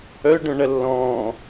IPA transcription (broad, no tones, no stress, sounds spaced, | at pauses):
œ ɖ œ̃ ɳ ɐ lː ɔ̃ː